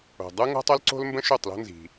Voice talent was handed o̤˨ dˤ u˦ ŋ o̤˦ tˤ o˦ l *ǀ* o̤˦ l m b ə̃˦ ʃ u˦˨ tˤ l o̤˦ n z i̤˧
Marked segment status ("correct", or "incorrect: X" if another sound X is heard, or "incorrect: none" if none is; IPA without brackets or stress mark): correct